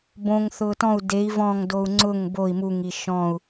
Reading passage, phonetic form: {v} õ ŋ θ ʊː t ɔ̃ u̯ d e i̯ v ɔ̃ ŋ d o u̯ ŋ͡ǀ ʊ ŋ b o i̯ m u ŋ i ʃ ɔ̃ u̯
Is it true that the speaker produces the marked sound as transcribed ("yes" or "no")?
no